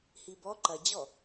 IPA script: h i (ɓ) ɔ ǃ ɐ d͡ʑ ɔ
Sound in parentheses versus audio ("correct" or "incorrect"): incorrect